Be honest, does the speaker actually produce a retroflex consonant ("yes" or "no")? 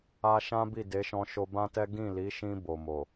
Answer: no